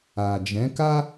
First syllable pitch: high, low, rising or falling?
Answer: low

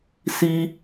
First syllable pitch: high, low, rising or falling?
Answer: high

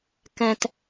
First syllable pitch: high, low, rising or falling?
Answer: low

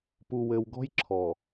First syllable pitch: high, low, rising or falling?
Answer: low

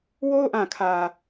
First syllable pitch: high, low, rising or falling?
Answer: high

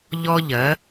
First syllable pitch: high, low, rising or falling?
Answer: high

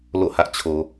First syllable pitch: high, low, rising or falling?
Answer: falling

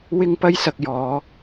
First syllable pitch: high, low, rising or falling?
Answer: high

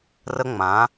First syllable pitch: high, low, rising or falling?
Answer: high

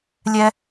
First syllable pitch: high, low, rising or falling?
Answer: high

